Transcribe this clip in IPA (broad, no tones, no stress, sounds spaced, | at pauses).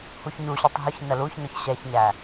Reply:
h u ç ɲ u ɕ u tˤ ɦ ʊ ç n ə l u ç n ʊ ç ɕ ɛ ç ɲ æ